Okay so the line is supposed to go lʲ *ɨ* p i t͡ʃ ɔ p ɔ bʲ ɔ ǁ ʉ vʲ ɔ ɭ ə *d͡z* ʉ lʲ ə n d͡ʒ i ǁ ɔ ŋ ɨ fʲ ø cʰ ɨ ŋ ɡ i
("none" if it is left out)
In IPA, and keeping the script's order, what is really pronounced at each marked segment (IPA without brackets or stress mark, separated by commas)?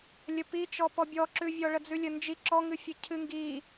ə, d͡z